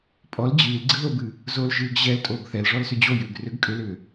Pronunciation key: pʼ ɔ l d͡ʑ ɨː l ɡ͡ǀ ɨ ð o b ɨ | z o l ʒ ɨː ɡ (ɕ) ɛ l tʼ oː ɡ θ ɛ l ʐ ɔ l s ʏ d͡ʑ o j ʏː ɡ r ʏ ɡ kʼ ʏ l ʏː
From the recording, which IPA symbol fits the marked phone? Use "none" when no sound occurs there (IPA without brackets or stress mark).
ʑ